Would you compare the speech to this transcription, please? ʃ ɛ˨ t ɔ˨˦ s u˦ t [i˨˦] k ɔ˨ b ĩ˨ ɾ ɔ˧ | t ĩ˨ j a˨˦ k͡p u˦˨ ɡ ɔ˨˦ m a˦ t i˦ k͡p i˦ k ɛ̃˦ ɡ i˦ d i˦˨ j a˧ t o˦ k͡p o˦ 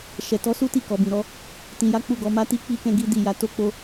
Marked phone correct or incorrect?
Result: incorrect